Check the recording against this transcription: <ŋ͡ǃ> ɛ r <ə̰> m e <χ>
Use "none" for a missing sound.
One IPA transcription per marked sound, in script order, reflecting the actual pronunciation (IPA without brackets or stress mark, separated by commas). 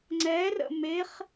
ŋ͡ǀ, ə̰, χ